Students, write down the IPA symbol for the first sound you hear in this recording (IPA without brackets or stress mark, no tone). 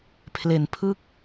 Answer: pʰ